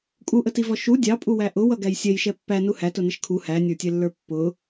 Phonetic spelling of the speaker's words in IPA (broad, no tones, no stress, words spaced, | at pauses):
kʼuʔətivɔ ʃu dʲɑpʼuwæ ʔʊwʌɡæj sʲɛjʃɛ pːænu hætʊnɪʃ kʰu hænʲə˞tʲɛlːə˞ pːʊ